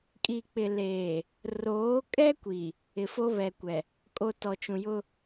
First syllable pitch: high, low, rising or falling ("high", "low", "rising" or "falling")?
low